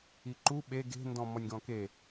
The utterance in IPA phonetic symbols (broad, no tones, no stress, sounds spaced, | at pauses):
i ǃ u ɓ e ɡ e̤ n d ɔ̃ m ɔ nʲ ɡ ɔ̃ k e